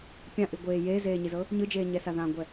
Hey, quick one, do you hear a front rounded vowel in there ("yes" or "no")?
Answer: no